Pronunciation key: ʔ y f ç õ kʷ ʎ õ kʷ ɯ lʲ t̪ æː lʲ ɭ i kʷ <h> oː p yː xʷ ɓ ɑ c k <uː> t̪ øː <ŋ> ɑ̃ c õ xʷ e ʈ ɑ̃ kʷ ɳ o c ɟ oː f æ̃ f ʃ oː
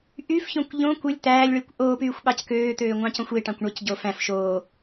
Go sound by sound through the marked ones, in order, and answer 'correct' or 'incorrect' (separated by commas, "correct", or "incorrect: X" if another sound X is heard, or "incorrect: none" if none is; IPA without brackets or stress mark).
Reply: incorrect: ʔ, incorrect: øː, incorrect: ŋʷ